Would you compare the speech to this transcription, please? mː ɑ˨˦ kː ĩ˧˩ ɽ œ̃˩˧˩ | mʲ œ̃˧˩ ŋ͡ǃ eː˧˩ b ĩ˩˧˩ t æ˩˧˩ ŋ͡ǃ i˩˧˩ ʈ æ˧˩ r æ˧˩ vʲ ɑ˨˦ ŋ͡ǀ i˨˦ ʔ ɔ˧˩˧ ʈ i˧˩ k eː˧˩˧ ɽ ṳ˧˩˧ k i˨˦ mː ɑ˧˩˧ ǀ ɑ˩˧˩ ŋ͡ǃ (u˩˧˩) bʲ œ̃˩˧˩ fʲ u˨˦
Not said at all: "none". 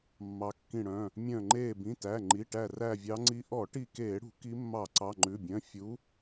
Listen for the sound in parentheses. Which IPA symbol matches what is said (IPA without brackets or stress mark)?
ʉ˩˧˩